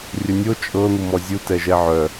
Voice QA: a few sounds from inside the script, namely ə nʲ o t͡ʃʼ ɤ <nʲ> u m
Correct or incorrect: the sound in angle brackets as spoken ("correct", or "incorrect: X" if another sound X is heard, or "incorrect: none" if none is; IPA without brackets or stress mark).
incorrect: n̪